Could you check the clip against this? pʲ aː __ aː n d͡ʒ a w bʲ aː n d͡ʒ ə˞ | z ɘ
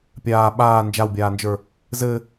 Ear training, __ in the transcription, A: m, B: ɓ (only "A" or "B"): B